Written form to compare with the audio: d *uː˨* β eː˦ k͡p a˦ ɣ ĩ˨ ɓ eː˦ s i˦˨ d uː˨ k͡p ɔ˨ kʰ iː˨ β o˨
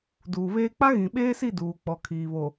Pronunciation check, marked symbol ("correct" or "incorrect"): correct